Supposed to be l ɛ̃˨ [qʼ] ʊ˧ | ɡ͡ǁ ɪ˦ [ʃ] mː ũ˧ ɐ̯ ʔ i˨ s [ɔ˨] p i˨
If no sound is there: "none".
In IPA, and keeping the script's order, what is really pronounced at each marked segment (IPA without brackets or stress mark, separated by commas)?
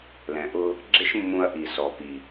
ʔ, ʃ, ɔ˨